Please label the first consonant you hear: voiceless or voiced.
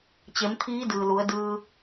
voiceless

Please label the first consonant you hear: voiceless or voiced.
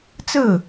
voiceless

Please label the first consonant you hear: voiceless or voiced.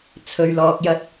voiceless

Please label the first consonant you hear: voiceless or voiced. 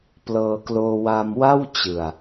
voiceless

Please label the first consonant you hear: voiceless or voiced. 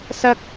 voiceless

